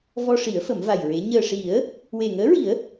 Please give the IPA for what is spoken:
v ɔ˧ ʂ i˨˩˦ ə̯ f ə˨˩˦ m v a˨˩ j ɹ e˧˥ ɲ əː˨˩ ʂ i˨˩˦ ə̯ | w e˨˩ ŋ əː˧˥ ɹ i˨˩˦ ə̯

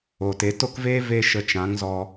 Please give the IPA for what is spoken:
o˨ t e˨˦ t o˦ k v eː˦ v e˧ ʃ ə˧ t͡ʃ ã˨˦ ŋ z ɔ˧

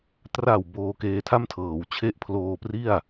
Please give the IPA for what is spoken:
t r a˨˩ w b oː˧ k eː˧ tʰ a˥˩ m tʰ ɤː˩˦ w t͡ɕʰ e˦˥ ʔ pʰ l oː˧ p r i˥˩ a̯

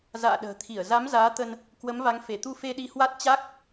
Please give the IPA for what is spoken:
z a̰ː˧˨ ɗ ə̤ː˨˩ t̪ʰ i˧˩ ə̯ z a˨˦ m z aː˨˦ t̪ ə˧ n | k w ə˨˦ m v a˨˦ ŋ f e˧˩ t̪ u˧ f e˧ ɗ i˧ h w a˦˥ t̚ t͡ɕ a˦˥ k̚

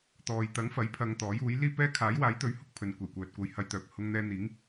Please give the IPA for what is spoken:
t̪ ɔː˨ j t̪ ɐ˨˥ ŋ f ɐ˨˥ j pʰ ɐ˧ ŋ t̪ ɔː˨˥ j uː˨˥ j l iː˥ p ɛː˥ kʰ aː˨˥ j w aː˨˥ j t̪ ɵ˨˥ ɥ h ʊ˧ k̚ pʰ ɵ˨ n kʷ e˨˩ j kʷ œː˨ t̚ kʷ ɐ˧ j h ɐ˧ j t̪ œː˨ p̚ h ʊ˧ ŋ n̪ ɛː˧ n̪ iː˨˥ ŋ

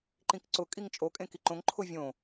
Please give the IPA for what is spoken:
ǃ ĩ k ǀ ʊ kʼ i ŋ t͡ʃʼ o kʼ ẽ k i ǃ õ ŋ ǃʰ ʊ vʲ õ

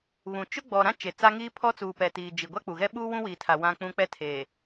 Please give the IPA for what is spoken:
β ũ˨ t͡ʃ ʊ˦ ɡ͡b ɔ˨ ɾ ã˦ t͡ʃ e˨ t͡s a˦ ŋ iː˦ pʰ ɔ˦ t͡s uː˨ p ɛ˨ t iː˨ d͡ʒ i˨ ɡʷ a˦ k͡p u˨ ɣ ɛ˦ ɓ uː˦ w ũ˦ w i˨ tʰ a˨ w ã˦ k͡p ũ˦ k͡p ɛ˦ tʰ e˨

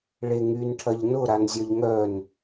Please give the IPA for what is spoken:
ɭ e ŋ y n ʈʰ ɐ ʎ n ʊ ɾ a n zʲ œ ʎ ŋ œ n

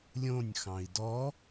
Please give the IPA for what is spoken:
lʲ õ nʲ x ɑ̃ i̯ d ɔ

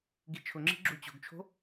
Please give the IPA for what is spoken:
ɡ i t͡ʃʰ ʊ ŋ͡ǁ i̤ ɡ͡ǁ u t͡ɕ o̤ ɡ t͡ʃʰ o̤

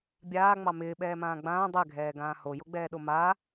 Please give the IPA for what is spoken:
bʲ aː ŋ͡m ɑ m ɪː ɓ ɛː m ãː ɡ͡b ãː dˤ ɛ ɡʱ ɛː ɡ ãː h o j o ɡ͡b ɛː ɗ o m a

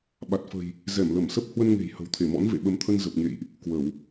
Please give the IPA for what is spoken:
ɓ a˨˩ t̚ f ə̤˨˩ j | z ɛ˧˩ m l ə˧˩ m s ə˦˥ p̚ h w ə˧ n ŋ e̤˨˩ j h ə̤˨˩ w t̪ʰ e˧˩ m ɔ̰˧˥ n v ḛ˧˨ ɓ ə˨˦ m t̪ʰ ə˧ n z ə˨˩ p̚ ɲ ḛ˧˨ j ʔ | k w ə˧˩˨ w

